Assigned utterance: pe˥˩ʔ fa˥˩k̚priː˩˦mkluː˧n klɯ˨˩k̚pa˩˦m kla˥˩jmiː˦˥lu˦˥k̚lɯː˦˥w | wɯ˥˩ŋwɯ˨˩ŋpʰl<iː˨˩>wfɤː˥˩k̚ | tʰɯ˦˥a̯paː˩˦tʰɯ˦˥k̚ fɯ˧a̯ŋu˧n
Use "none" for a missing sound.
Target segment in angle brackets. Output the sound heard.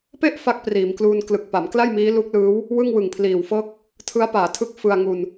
iː˨˩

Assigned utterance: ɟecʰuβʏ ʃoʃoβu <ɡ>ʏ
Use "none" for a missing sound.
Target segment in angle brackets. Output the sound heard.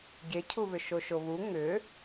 ŋ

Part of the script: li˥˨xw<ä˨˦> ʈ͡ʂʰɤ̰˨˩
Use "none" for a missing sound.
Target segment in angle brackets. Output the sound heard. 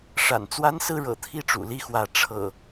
ä˨˦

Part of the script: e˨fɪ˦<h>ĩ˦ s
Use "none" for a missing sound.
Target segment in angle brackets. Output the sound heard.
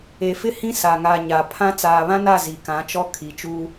h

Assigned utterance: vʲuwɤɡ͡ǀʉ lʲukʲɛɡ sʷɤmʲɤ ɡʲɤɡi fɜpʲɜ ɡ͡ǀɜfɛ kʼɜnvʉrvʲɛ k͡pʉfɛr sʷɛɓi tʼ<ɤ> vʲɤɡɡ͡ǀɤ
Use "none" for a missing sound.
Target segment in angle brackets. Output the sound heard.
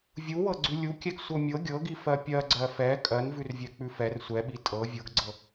ɤ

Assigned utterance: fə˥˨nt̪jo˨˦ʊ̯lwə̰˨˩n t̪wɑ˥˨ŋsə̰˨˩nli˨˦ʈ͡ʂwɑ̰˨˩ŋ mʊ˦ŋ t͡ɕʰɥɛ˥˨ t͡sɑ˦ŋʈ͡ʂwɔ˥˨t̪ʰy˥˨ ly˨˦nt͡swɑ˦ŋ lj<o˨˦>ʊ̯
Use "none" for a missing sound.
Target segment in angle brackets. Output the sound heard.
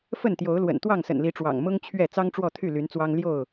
o˥˨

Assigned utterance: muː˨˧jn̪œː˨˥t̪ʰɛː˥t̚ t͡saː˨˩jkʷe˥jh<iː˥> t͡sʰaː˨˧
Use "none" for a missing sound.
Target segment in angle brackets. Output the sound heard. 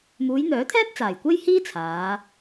iː˥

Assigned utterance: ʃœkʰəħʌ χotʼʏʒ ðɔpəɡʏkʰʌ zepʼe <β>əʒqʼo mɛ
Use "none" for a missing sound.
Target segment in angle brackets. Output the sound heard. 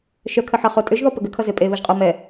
β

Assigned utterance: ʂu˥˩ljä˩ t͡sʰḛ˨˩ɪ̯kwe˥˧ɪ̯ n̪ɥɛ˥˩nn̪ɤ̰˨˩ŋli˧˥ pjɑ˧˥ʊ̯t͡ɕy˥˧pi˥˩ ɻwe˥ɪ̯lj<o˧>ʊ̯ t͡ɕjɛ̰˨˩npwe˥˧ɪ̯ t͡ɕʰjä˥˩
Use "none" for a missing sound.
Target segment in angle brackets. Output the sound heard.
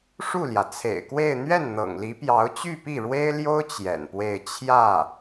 o˥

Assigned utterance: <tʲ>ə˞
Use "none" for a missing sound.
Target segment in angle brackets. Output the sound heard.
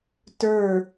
t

